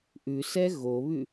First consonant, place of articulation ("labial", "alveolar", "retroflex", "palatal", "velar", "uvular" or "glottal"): glottal